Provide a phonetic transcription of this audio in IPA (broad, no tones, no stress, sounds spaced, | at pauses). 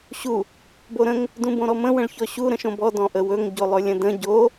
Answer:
ɕ u | b o ɾ ə̃ ŋ | d ũ b õ ɾ ɔ m ə̃ w ə̃ ɭ ç ɔ ɕ u ɾ ə̃ ʃ õ b ɔ d ɔ̃ ʔ ə w ɵ ŋ ɟ o lˠ ɵ lʲ ə̃ d ə̃ ɟ o